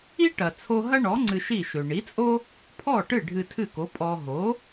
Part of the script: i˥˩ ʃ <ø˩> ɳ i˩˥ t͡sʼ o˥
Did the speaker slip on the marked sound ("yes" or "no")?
no